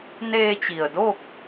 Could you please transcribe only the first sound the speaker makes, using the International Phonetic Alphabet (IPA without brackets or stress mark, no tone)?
n